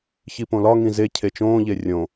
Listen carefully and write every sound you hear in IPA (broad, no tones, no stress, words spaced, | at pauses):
çipõlɒ ŋĩze cʰet͡ʃõː ʎerʲõ